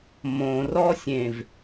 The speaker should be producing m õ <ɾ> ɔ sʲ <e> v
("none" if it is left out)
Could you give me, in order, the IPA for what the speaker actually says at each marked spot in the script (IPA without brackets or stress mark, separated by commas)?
r, ẽ